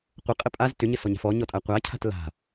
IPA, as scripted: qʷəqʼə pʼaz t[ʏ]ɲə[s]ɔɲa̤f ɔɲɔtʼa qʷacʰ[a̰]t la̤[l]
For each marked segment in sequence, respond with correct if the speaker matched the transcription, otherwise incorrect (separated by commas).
correct, correct, incorrect, incorrect